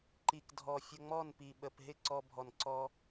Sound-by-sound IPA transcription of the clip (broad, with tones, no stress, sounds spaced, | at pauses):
ǃ i˨ k dʱ ɔ˨ fʲ ə˧ ŋ͡m ɔ˦˨ n p i˨ ɓ ə˨ p ɦ ɪ˦˨ ǀ ɔ˧ bʱ ɔ˨ n ǀ ɔ˧